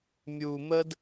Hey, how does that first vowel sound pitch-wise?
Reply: low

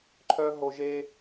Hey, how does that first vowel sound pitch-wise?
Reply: high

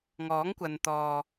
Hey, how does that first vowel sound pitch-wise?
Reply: rising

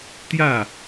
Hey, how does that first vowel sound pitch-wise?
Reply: falling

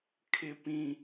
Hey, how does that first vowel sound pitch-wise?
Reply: high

